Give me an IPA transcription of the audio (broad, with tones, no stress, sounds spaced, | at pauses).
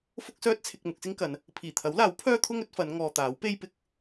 f ʊ˥ k̚ s œː˥ t̚ t͡sʰ ɪ˧ k̚ m ʊ˧ k̚ s ɪ˥ ŋ k ɐ˨˧ n | pʰ iː˨˩ t̪ʰ ɐ˨˥ w l aː˨˥ w pʰ œː˥ t̪ʰ ʊ˥ ŋ ɵ˨˥ t̚ f ɐ˨˧ n ŋ ɔː˨ t̪ aː˨˥ w p e˥ j p ɪ˧ k̚